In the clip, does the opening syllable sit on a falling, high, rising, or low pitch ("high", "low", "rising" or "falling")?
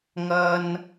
high